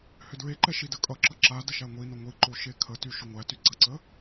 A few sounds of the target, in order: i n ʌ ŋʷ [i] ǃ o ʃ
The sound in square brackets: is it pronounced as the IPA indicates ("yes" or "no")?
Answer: yes